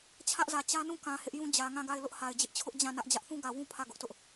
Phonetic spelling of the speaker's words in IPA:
t͡ɕʰ ä˦ ʔ z ä˨ t͡ɕ ä˦ n ũ˦˨ k ã˨ h ɪ˦ ʔ j ũ˦ d͡ʑ ä˨ ŋ ã˦˨ ɡ a˦˨ ɪ̯ l ʊ˦ ʔ h a˨ ɪ̯ d͡ʑ ɪ˦ ʔ t͡ɕʰ ʊ˦ ʔ d͡ʑ ã˦˨ n ä˦ ʔ d͡ʑ ä˦ ʔ θ ũ˦ ɡ ä˨ w ũ˦ pʰ ä˦˨ ɡ ʊ˦ ʔ t ʊ˦ ʔ

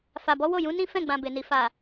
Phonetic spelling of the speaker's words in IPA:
f a˨ b ɔ˨˦ w o˦˨ j ũ˨˦ n ĩ˦ f ɛ̃˦˨ ɡ͡b ã˨ b e˨ n i˨ f a˨

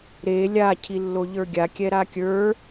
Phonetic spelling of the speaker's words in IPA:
ɾ e lʲ a cʰ i lː o ʎ ə˞ ɡʲ a kʲ ɛ ɾ a kʲ ə˞

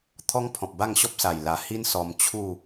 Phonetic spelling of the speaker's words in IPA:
t̪ʰ ɔ˦ ŋ pʰ ɔ̃˨ p̚ b a˥˧ ŋ ɕ ɔ˦ p̚ s a˨˩ j l a˨˩ h i˦ n s ɔ˧ m t͡ɕʰ u˥˧

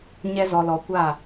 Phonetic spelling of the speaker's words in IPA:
ɲ ɛ˧ z ɔ˨ l ɔ˨ kʷ a˦˨

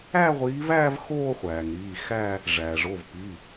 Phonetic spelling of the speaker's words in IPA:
æ˥˧ ʁʷ iː˨˦ v æː˥˧ v x oː˥˧ χʷ æː˩ ŋ ɾ iː˩˧˩ x æ˥˧ | ʐ æː˩ ʐ o˩˧˩ v p i˩˧˩

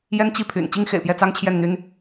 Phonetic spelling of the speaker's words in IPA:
j ɛ˥ n t͡ɕ i˥˩ pʰ y̰˨˩ n t͡ɕ i˥ ŋ x ḛ˨˩ ɪ̯ p j ɛ˥˩ t͡s ɑ˥ ŋ t͡ɕʰ j ɛ˥˩ n n̪ y˥ n

